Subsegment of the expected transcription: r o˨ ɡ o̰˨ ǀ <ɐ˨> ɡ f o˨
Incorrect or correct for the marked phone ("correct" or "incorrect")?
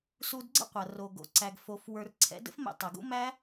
incorrect